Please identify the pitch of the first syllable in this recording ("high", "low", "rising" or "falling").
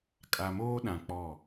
low